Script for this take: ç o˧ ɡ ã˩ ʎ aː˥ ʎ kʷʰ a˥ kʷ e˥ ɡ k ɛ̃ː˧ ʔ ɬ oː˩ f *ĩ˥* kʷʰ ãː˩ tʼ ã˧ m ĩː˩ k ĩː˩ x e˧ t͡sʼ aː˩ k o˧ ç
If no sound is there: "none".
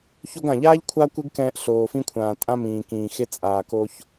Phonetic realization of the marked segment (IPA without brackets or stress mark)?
ĩ˧